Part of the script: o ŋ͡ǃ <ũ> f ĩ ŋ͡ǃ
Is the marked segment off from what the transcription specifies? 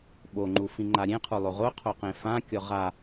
yes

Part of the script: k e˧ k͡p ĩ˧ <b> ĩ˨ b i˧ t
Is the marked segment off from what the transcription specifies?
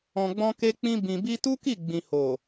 no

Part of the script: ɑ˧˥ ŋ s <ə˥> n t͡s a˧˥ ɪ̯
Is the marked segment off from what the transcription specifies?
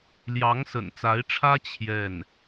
yes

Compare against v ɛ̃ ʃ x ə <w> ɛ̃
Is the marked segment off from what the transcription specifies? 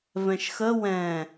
no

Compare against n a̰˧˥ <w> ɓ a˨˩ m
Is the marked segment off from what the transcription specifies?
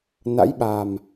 yes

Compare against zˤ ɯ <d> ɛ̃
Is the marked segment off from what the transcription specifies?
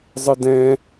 no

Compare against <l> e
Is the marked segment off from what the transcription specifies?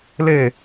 no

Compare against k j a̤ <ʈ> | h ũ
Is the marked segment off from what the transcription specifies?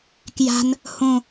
yes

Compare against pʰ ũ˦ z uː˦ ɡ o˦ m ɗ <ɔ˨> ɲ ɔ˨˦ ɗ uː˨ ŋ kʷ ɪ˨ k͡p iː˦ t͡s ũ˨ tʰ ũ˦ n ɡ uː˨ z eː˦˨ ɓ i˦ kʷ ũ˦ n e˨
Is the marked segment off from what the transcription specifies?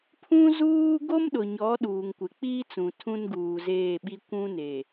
yes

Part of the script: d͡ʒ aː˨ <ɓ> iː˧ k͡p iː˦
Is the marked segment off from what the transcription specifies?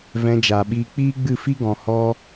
no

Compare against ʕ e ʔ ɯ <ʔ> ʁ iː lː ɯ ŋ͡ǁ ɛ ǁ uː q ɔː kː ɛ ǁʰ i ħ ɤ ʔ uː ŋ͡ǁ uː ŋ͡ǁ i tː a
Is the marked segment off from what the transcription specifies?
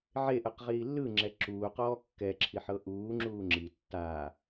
yes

